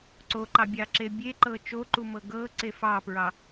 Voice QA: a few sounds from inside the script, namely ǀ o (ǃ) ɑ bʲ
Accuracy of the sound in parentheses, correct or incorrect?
correct